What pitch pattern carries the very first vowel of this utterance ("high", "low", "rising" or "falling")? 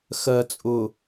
low